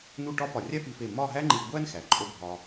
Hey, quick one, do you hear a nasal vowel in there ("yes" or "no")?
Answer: no